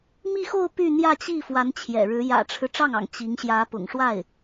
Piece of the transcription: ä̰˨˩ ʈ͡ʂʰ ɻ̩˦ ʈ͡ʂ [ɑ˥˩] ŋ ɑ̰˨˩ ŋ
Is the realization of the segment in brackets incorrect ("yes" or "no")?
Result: no